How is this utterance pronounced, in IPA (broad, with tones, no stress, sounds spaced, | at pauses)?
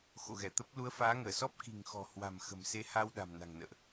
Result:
x o̰˧˨ ɣ ɛ˧˩ t̪ ə˦˥ p̚ l u˨˦ ə̯ f aː˨˦ ŋ əː˧˩ s ɔ˦˥ p̚ k i̤˨˩ ŋ x ɔ̤˨˩ h w a̤˨˩ m x ə̤˨˩ m s e˨˦ h a˧ w ɗ a̤˨˩ m n a̤˨˩ ŋ n ə̰ː˧˨ ʔ